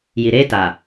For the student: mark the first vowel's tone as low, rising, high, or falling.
low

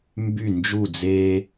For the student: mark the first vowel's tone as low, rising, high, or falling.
falling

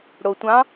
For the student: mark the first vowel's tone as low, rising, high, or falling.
low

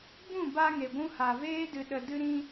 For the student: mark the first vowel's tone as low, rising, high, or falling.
falling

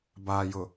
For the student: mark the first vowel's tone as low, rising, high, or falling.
low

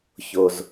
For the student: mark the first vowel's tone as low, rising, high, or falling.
low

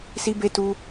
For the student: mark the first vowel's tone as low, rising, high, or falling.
high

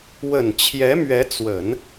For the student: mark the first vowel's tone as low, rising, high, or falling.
low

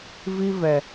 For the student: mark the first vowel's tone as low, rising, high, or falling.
high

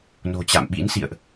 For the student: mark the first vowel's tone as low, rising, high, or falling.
low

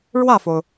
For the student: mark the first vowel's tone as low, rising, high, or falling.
falling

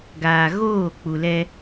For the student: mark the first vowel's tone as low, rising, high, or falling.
low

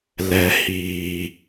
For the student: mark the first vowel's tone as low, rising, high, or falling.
low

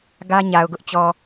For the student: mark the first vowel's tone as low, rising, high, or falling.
high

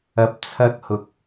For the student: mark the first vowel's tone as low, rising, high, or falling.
low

